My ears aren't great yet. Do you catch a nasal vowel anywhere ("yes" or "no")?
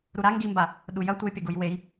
no